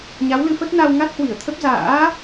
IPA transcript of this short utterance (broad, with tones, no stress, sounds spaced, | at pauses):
ɲ a˨˦ w l ɨ˧ f ə˦˥ t̚ n a˧ w ŋ a˦˥ t̚ h w i˧˩ ə̯ t̪ʰ ə˦˥ p̚ z a̰ː˧˥